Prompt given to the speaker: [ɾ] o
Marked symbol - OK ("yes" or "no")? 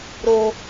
yes